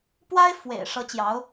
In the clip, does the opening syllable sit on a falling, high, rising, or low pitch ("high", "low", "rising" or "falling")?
high